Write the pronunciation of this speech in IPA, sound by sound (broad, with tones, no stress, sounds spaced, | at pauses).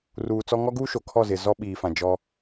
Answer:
r uː˨ t͡s ɔ˦ ŋ ɔ˦ ɡ uː˦ ʃ o˨ kʰ ɔ˦˨ z ɪ˨ z ɔ˦ ɓ iː˨ f ã˨ d͡ʒ ɔ˦